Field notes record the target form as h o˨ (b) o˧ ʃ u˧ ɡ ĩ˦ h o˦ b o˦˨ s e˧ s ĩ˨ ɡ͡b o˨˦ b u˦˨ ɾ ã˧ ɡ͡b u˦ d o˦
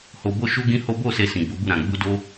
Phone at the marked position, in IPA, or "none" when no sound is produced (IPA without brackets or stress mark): b